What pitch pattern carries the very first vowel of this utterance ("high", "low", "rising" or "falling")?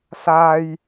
low